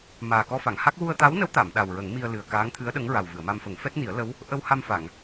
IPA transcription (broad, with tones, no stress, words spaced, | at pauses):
maː˨˩kɔ˧fa˨˩˨ŋha˦˥k̚ wu˧ə̯t̪a˧˥wnə˧˥w t̪a˨˩˨m ɗa˨˩wɹə˨˩˦ŋmi˧ə̯ lɨ˨˩ə̯kaː˧˥ŋt̪ʰɨ˧˥ə̯ɗə˧˥ŋ ɹa˨˩wvɨ˨˩˨ə̯ma˧mfə˨˩˦ŋ fɛ˦˥t̚ni˨˩˦ə̯lə˧˥w | ʔə˧wha˧mfa˨˩˨ŋ